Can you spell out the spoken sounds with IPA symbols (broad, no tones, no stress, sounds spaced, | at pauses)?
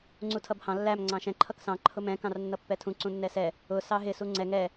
ŋ͡ǀ u tʰ ʌ b h ɑ̃ lː æ m ŋ͡ǀ ɑ̃ ʃ ɛ̃ ǃʰ ʌ k s ɑ̃ ǃʰ ʊ m ɛ̃ k ɑ̃ r nː ʌ pː ɛ tʰ ũ ǀ ũ nː ɛ s ɛ | ʊ s ɑ ɦ ɪ s u ŋ͡ǀ ɛ ŋ ɛ